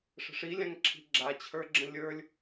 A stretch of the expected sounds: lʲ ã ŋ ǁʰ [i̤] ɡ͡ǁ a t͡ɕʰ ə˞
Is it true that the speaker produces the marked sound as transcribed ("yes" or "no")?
yes